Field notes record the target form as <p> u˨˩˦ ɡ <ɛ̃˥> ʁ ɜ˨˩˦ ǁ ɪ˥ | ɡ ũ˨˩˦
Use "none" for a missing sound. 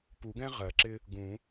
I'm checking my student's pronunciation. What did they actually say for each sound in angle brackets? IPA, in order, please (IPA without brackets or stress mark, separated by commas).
p, ɛ̃˥